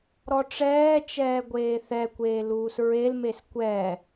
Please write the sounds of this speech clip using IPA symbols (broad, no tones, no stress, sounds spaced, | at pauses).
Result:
ɾ ɔ ʈ͡ʂ ɛː t͡ʃ ɛː ɡʷ eː θ ɛ kʷ eː l uː s ɹ e l m e s kʷ ɛ